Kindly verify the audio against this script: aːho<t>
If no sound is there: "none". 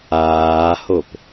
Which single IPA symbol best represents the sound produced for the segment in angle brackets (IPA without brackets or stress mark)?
p